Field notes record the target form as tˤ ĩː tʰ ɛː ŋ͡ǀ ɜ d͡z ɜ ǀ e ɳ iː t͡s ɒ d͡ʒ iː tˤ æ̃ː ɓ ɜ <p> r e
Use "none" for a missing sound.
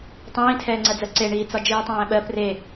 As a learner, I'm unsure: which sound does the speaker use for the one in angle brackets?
p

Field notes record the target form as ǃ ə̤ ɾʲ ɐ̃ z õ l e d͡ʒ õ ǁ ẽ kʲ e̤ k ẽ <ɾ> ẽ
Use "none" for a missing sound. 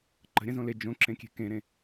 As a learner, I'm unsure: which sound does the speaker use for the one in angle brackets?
ɾ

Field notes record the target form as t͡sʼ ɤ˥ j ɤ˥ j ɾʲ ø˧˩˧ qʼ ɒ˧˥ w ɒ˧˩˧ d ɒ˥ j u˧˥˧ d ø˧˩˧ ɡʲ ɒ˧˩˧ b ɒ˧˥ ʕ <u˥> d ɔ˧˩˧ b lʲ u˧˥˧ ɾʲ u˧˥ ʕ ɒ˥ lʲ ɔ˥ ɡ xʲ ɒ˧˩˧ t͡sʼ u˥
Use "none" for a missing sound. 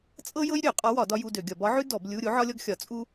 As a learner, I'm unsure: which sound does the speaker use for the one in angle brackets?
ʉ˥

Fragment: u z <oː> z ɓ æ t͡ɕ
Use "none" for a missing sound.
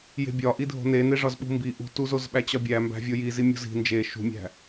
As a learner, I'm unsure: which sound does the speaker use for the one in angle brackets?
o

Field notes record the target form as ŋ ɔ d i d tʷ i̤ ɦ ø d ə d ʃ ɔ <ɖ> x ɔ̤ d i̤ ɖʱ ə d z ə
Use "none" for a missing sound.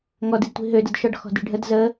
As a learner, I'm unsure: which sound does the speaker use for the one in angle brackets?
ɖ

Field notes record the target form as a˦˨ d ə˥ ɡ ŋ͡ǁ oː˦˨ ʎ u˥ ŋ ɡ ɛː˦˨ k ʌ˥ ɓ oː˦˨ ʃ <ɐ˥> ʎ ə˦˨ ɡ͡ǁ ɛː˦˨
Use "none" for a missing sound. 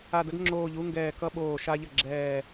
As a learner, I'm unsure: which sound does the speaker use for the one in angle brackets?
a˥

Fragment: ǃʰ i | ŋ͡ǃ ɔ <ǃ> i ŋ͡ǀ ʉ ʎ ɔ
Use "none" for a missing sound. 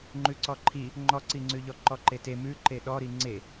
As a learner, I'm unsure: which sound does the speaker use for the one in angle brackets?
ǀ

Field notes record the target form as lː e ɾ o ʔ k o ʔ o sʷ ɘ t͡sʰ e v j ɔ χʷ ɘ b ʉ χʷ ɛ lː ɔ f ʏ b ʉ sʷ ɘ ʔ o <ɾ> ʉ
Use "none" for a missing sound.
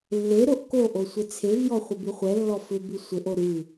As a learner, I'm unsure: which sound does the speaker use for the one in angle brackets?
ɾ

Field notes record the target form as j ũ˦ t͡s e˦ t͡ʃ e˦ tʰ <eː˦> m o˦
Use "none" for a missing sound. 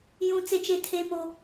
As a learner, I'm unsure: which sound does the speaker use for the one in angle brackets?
eː˦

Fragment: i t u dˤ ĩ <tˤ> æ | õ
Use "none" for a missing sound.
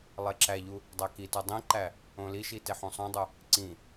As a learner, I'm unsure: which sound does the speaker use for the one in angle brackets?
ǃ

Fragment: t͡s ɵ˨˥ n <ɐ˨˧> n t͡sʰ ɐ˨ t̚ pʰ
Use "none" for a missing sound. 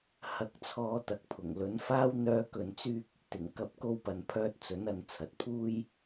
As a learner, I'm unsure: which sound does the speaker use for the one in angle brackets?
ɐ˨˧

